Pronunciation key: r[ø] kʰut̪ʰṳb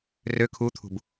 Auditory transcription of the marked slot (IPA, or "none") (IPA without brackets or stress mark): ø